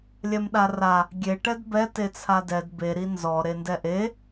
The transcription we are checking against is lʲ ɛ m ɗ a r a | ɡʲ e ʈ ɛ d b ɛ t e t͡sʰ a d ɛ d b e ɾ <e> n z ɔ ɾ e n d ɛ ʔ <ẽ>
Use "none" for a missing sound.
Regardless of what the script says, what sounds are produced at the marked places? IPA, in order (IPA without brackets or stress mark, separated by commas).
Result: i, e